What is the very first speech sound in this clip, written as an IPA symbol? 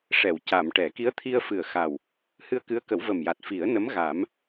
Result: ʂ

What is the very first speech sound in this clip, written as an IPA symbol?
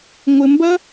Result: ŋʷ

